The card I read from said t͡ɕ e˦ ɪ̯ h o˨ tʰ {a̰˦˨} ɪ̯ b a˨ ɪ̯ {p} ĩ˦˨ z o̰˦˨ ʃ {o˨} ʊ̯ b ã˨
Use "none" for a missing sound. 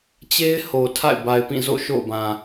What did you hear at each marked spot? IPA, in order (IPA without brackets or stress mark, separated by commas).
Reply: a̰˦˨, p, o̰˦˨